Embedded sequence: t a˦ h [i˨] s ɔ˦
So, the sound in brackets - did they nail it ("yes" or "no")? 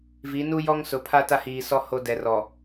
no